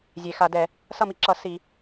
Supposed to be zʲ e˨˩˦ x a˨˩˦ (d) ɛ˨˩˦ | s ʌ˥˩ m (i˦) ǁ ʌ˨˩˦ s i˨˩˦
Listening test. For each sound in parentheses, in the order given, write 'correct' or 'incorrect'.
correct, correct

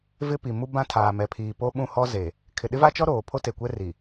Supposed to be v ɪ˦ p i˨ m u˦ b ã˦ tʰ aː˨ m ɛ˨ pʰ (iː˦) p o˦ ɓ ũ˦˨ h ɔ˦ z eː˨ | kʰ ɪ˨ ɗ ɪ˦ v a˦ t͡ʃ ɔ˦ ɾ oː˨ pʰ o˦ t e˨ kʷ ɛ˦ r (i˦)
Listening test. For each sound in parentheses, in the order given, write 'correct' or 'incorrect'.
incorrect: iː˨, incorrect: i˨

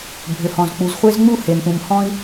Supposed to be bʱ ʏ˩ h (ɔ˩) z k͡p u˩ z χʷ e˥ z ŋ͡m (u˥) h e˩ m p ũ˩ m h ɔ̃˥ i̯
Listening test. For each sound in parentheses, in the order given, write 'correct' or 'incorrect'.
incorrect: ɔ̃˩, correct

